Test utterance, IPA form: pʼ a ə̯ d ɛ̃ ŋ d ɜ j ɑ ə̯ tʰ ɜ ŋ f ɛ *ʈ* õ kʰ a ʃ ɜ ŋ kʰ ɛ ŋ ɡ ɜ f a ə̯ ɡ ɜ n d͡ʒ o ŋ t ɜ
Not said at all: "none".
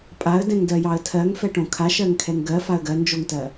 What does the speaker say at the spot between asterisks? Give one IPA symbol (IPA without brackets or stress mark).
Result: ʈ